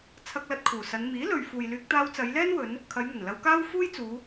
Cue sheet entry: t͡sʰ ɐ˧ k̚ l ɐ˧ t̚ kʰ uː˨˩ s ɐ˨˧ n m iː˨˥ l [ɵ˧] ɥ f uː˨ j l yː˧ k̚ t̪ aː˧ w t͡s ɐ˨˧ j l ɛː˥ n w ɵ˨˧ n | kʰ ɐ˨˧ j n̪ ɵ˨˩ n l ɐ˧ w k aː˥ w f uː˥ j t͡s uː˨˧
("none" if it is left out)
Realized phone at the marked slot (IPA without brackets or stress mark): ɵ˨